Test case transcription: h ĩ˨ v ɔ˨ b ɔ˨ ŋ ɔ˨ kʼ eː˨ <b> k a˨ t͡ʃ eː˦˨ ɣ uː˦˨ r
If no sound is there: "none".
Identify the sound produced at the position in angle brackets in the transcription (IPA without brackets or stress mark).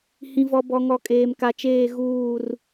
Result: m